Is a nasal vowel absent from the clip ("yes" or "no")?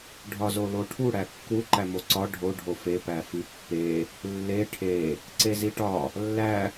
yes